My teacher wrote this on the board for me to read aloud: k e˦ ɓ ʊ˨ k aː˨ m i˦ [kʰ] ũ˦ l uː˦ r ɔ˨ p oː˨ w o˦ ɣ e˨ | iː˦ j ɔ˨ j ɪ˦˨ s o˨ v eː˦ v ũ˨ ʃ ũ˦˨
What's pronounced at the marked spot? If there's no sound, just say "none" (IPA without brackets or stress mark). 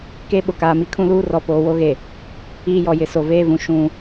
kʰ